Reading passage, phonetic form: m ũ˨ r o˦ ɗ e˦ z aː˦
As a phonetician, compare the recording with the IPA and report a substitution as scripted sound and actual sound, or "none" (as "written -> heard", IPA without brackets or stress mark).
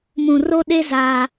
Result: none